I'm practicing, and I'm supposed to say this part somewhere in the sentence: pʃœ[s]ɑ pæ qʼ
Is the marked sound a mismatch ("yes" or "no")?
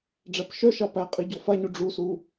yes